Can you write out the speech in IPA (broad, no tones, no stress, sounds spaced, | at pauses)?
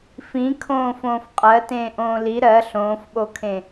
f ĩ kʰ õː f õː f qʼ ɜ t ẽː ʔ õː l i ɾ ɜ ɬ õː f ɓ o kʰ ẽ